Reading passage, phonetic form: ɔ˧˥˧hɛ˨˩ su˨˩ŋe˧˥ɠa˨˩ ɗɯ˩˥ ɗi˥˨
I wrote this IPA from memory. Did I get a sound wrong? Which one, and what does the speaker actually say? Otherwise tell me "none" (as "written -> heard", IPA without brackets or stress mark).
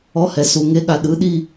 none